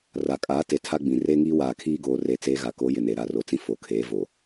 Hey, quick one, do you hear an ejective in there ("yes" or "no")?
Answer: yes